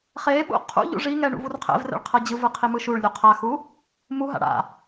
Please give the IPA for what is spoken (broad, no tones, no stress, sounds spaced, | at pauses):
χ e ɓ ṵ qʰ ṵ ʎ ṵ ʐ i ŋ ɛ ɳ ṵ v u r qʰ ɛ̰ v r ɛ̰ ɭ qʰ ɤ d͡ʑ ɯ v ɯ qʰ i m ɯ ʃ u ɭ lʲ u qʰ a x u | m u ɦ a̰ ɽ a̰